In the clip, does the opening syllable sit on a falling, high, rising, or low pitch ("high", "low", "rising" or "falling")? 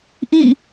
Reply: falling